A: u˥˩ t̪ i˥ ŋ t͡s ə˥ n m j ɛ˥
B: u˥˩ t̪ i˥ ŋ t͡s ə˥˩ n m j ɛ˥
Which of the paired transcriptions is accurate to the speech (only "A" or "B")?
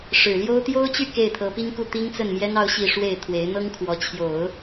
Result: B